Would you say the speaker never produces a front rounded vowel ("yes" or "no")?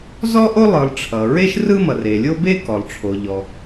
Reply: yes